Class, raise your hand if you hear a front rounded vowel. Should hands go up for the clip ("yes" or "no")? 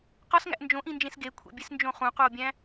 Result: no